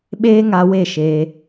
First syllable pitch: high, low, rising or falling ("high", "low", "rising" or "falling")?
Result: high